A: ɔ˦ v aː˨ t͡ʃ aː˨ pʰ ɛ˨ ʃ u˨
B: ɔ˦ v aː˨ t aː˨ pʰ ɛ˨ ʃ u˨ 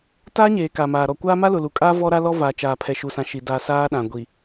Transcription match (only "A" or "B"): A